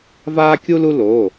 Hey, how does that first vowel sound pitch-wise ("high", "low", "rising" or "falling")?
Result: high